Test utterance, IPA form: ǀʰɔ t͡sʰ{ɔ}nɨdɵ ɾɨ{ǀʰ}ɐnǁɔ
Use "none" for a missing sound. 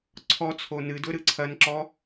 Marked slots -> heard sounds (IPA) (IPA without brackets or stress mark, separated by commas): o, ǀʰ